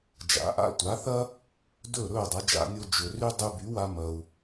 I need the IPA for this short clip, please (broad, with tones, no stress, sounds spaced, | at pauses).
d͡ʒ a̰˩˥ ʔ a̰˥ tʷ a˩˥ θ ɐ˥ | d ɵ˥˩ ɾ ɵː˥˩ dˤ ɐ˩˥ d͡ʒ a̰˧ nʲ o˧ d͡ʒ ɵ˩ r y˥ dˤ y˧ b y˩˥ w a˧ m ɐ˩ u̯